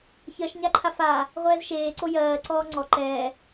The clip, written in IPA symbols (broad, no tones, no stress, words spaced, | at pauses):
çɜʃɲaǃʰa fa | ʁʷɛːzʃeːǀo jɜː ǀɔːŋ͡ǀɔ ǃɛː